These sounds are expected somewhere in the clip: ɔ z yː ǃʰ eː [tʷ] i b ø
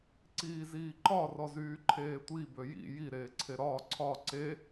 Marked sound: correct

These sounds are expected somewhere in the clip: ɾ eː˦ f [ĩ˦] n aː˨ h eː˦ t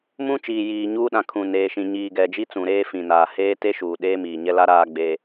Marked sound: incorrect: ĩ˨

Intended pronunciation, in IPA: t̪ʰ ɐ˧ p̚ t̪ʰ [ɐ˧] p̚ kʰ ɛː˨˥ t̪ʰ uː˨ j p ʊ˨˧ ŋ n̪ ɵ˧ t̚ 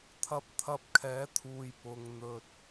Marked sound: correct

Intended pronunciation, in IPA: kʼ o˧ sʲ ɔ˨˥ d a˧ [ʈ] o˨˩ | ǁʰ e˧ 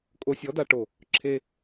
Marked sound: correct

